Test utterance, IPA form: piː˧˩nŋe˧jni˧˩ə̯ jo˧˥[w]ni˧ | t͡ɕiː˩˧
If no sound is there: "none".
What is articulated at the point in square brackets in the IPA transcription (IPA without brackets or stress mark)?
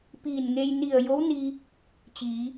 w